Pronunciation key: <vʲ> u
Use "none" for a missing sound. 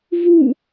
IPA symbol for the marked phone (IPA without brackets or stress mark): v